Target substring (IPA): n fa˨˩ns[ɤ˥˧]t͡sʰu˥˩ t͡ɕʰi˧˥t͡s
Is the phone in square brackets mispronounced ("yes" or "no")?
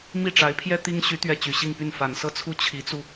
no